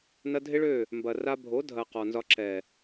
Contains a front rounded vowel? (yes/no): yes